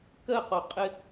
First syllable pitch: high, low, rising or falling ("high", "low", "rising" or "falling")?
falling